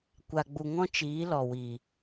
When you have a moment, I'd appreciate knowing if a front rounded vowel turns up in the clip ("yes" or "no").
no